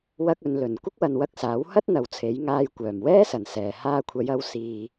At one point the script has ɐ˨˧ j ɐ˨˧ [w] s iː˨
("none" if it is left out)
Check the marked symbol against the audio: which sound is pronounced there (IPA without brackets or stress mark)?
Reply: w